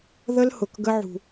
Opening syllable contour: high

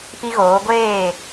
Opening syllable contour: high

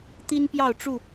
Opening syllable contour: high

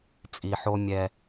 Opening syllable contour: low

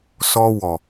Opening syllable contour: high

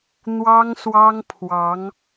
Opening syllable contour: high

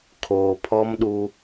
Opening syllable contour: low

